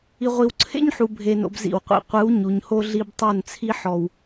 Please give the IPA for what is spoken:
i˨ ʁʷ i˨ w ǀʰ ḛ˦ ɲ ħ u˨ bʱ e˨ n o̰˨ b z ḭ˦˨ w qʷ ḭ˦˨ qʷ ɯ˨˦ w ɲ u˨ ɲ h o˦ ɮ i˦ b tˤ o˦˨ n t͡sʰ i˦ ħ ɔ˨ w

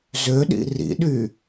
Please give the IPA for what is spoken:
z ø ɗ ḭ r ḭ ɗ y

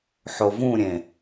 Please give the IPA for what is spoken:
ħ o v ũ ɾʲ ẽ

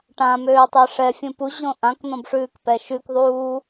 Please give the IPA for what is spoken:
ʈ ã m øː tˤ ɛ ʂ ɛ fʲ ũ p u ʑ õ ʔ ã k n̪ ɔ̃ b ʂ ʉː k p ɛ ʃ ʉ k ðˤ uː

